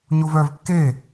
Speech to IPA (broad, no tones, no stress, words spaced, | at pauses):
ɲovœv kːe